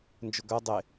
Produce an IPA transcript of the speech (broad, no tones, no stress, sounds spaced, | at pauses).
n d͡ʒ ʊ ɡ œ dˤ e